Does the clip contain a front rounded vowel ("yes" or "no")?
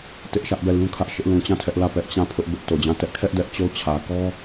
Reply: no